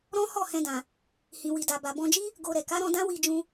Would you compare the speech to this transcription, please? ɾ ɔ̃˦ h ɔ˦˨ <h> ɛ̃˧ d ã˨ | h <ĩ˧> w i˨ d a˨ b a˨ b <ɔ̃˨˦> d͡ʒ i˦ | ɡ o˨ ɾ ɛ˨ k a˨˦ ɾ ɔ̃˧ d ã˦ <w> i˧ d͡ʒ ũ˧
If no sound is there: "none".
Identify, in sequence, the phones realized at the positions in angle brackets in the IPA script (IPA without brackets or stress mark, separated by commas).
h, ĩ˨, ɔ̃˧, w